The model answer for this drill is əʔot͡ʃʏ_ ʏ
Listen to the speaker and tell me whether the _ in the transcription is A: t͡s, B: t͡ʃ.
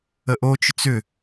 A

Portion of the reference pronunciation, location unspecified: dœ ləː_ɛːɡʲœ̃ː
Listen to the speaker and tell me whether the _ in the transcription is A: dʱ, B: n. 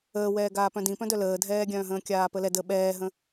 A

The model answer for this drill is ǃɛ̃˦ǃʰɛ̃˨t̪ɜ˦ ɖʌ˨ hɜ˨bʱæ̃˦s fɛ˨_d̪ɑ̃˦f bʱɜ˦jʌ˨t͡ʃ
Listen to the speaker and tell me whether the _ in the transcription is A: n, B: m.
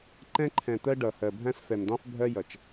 B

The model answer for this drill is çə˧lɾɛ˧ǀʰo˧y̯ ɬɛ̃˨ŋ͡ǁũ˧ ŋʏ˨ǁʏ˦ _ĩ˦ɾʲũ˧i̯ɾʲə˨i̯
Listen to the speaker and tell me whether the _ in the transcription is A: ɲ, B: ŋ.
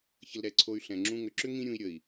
B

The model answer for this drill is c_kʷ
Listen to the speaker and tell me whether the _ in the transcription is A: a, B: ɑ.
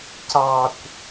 B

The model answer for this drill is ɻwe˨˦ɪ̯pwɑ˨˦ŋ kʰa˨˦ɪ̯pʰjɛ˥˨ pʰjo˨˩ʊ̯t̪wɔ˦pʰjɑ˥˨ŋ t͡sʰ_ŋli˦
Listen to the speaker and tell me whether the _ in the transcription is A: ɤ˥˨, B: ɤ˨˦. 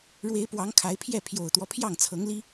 B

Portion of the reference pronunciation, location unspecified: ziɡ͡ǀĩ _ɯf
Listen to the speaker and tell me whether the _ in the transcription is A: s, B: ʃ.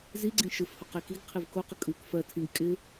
B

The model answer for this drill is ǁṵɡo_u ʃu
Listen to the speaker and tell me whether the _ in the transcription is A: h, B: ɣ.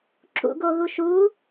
B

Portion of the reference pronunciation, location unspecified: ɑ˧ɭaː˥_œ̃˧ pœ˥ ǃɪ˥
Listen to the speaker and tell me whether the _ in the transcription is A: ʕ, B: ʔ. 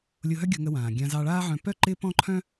A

